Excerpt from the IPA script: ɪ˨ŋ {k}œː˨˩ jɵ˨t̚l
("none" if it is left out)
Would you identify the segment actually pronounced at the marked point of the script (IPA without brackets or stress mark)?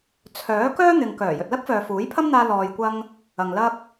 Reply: k